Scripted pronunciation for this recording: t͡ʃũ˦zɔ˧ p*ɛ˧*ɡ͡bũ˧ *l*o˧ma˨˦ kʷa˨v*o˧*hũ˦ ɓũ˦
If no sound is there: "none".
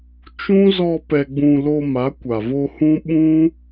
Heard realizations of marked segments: ɛ˧, l, o˧

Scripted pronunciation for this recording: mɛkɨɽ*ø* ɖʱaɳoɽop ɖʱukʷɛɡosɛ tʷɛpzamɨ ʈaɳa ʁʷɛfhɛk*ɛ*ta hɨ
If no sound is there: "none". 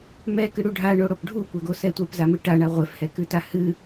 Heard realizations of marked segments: u, ɨ

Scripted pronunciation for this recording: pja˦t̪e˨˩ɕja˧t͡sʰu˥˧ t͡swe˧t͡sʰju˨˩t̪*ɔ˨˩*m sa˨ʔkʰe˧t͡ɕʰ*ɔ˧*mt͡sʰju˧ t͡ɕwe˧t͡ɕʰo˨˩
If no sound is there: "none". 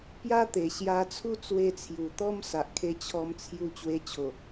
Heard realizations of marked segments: ɔ˦, ɔ˧

